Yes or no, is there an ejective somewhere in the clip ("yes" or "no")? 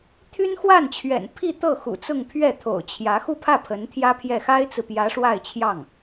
no